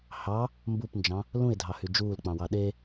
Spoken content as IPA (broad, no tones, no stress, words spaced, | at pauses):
hɑ | mbupnd͡ʒɑ̃ | lũɪ̯dʱɑhy d͡ʒuːlk͡pɑ̃wɑ ɗe